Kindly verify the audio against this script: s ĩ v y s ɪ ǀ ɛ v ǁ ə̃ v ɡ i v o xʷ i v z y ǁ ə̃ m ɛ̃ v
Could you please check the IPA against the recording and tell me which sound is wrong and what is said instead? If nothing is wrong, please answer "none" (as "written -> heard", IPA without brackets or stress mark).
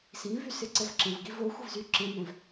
none